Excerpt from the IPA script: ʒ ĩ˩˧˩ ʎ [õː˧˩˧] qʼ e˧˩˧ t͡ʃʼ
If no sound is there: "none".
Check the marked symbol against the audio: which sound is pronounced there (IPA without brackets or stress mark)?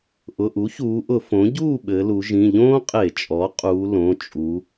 õː˥